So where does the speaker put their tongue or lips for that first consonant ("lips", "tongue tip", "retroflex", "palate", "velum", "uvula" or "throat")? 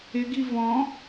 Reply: velum